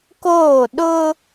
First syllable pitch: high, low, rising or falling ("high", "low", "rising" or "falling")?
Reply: falling